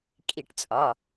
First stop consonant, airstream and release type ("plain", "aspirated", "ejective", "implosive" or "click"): ejective